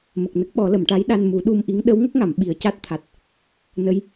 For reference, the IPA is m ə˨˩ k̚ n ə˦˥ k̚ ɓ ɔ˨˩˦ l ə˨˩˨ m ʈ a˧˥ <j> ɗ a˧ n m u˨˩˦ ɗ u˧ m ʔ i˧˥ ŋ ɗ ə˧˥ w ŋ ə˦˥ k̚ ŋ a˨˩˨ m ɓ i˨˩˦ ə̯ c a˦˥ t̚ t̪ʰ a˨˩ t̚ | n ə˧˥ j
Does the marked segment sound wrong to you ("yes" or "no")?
no